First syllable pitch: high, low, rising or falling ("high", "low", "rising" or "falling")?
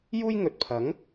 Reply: high